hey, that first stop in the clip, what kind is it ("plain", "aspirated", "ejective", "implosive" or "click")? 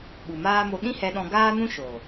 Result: implosive